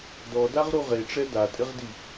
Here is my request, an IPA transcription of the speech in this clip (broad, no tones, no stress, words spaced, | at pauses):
dɔdaʁɾu ʁeʈ͡ʂɛ datʼɪʁdi